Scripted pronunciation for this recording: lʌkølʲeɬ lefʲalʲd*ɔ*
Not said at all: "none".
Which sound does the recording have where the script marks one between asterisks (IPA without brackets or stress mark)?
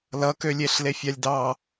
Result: ɑ